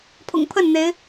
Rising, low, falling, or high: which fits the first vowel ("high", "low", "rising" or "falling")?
low